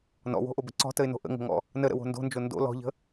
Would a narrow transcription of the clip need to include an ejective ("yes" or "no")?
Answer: no